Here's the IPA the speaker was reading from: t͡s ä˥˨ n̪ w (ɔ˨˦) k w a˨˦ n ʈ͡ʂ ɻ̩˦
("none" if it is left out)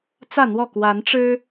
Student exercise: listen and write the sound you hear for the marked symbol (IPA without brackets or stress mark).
ɔ˥˨